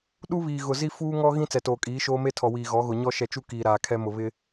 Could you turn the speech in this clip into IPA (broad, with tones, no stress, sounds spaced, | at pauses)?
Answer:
ɗ u˦ β iː˨ ɣ ʊ˨ z i˦ f uː˦ ŋ ɔ˦ ɣ ĩ˦ t͡s ɛ˨ t oː˨ kʼ iː˨˦ ʃ oː˦ m e˦ tʰ ɔ˨ w iː˨ ɣ ɔ˨˦ ɣ ʊ˨ ɲ ɔ˦ ʃ ɛ˨ t͡ʃ u˦ k iː˨ ɾ aː˨ kʰ ɛ˦ m ʊ˨ β ɪ˦